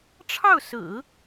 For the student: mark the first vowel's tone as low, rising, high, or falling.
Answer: falling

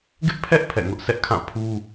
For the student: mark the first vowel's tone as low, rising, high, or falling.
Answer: high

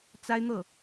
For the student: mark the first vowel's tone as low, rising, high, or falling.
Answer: high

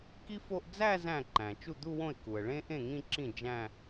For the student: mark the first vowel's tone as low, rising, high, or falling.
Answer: high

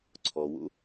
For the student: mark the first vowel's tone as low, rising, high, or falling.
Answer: low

